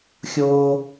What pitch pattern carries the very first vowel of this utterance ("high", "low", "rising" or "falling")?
high